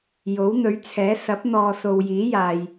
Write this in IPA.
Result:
j o˨˥ w n̪ ɵ˨˥ ɥ t͡sʰ ɛː˨˥ s ɐ˨˥ p̚ n̪ ɔː˨ s o˨ w j iː˨˥ j aː˨ j

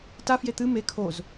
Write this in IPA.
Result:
t a f j e t̪ ɨ m e kʰ o z

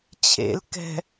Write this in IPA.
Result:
t͡ɕʰ ḛ l k ɛ̤

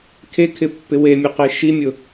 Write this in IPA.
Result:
kʰ e kʰ ɪ pː ɪ w e mʲ ʊ q e ʃ i mʲ ʊ

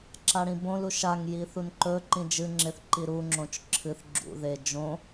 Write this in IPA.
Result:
ǁ a ɽ ĩ b õ l u ʃ a ŋ j i θ u n ǃ ɵ ǃ ĩ d͡ʒ ɨ ŋ͡ǁ e θ ǃ i ɾ u ŋ͡ǁ õ t͡ʃ ǁʰ ɨ θ ɡ͡ǁ ṵ ð e d͡ʒ õ

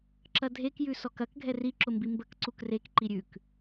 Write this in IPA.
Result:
ǁ ɐ dʱ e k j ʉ s ɔ k ɐ k ɡʱ ɛ r i ǁ ʊ m b i m b ə k ǀ u k r e k ǃ i ɾʲ ʉ k

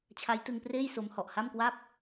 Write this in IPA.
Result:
t͡ɕʰ a˦˥ j t ɯ˧ ŋ p r eː˥˩ j s o˧ m h ɔ˨˩ ʔ h a˥˩ m k w a˥˩ p̚

